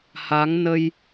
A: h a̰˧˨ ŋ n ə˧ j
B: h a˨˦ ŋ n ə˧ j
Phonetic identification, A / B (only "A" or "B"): B